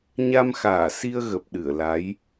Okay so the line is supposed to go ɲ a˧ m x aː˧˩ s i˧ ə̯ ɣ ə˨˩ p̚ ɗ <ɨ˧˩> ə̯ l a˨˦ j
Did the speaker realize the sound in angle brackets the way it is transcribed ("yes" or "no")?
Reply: yes